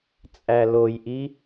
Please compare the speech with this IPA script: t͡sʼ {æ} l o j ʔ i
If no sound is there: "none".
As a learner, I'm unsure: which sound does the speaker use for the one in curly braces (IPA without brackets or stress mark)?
æ